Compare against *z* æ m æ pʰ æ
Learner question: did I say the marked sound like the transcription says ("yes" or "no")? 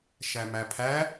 no